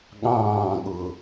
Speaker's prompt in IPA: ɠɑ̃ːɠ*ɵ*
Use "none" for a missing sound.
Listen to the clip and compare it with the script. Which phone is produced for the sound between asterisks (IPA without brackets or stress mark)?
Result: ʊ